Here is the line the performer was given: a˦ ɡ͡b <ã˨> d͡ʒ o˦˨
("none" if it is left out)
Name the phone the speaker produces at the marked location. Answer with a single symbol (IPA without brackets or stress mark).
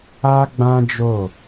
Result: ã˦